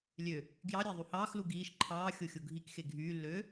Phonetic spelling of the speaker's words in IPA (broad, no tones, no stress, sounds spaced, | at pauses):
lʲ ø | ɡ j ɑ ɾʲ æ ðˤ u h ɑː x l u ɡ iː ʃ ǃʰ ɑː xʲ o xʲ o ɡʱ i k x e ɡʱ yː lː øː